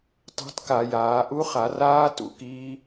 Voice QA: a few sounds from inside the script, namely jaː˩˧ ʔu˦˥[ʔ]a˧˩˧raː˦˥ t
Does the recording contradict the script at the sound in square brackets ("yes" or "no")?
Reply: yes